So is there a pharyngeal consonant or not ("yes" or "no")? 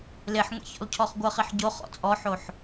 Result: yes